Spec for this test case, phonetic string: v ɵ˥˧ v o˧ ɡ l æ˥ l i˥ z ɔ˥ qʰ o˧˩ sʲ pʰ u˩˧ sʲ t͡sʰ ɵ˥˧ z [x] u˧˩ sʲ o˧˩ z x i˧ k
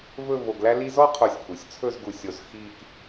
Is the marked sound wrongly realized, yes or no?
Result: yes